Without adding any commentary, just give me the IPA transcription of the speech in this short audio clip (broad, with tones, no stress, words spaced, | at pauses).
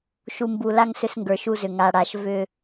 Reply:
ʃu˨mbu˨la˦ŋ sʏ˦sŋɡə˞˨ʃu˦zʏ˨ ŋa˨ɽa˨ʃ vʏ˦˨